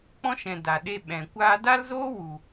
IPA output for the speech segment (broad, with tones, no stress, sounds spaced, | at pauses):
k͡p ɔ̃˦ ʃ ɛ̃˨ d a˨ ɗ e˧ ɓ ɛ̃˨ kʷ aː˧ d a˦ l z oː˦ w u˨